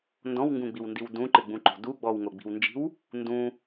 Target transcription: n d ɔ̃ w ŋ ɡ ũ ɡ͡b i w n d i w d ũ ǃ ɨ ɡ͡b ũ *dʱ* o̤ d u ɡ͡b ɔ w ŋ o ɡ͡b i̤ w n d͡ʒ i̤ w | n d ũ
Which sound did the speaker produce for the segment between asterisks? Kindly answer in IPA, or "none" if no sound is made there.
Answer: ǃ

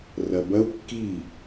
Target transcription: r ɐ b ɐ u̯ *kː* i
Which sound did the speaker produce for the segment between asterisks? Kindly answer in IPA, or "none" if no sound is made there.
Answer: kː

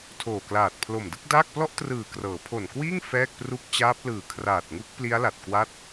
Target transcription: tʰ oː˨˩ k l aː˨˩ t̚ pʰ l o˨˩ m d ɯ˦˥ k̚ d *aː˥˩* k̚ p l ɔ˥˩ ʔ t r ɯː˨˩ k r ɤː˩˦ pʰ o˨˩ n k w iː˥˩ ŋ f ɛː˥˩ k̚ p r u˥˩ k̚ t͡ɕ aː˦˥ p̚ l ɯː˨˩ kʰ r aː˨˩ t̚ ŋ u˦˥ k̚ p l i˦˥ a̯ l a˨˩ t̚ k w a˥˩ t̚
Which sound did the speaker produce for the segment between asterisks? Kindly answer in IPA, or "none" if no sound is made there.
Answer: aː˥˩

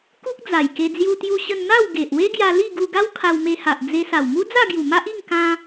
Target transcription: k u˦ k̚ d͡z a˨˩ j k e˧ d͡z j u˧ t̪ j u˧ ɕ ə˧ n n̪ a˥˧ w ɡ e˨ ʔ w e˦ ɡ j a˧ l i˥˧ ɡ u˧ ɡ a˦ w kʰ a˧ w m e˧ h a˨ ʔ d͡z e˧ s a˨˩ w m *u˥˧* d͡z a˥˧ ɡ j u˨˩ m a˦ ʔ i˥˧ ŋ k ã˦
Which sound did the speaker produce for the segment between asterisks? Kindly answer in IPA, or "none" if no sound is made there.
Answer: u˦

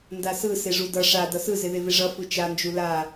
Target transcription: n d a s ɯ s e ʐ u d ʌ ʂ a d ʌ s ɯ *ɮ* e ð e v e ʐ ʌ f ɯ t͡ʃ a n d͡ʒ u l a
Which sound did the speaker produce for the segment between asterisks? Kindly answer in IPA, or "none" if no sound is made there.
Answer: z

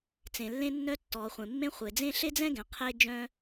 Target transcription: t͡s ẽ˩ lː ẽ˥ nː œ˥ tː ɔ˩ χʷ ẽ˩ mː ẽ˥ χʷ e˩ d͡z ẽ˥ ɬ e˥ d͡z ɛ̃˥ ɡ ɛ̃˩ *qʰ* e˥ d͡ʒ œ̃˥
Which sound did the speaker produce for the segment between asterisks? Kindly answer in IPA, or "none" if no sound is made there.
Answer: qʰ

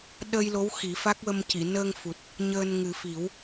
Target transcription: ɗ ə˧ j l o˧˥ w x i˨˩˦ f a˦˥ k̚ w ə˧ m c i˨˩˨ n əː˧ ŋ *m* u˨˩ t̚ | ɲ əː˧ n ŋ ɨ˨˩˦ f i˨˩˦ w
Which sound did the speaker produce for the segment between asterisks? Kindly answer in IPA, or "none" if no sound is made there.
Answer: f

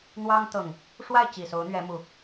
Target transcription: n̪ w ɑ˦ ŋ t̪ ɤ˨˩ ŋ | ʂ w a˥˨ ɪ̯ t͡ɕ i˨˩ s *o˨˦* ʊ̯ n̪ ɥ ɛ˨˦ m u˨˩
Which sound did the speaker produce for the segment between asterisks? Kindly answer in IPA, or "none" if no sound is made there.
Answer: o˨˦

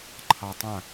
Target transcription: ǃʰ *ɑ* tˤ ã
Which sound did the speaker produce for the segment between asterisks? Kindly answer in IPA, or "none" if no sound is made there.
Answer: ɑ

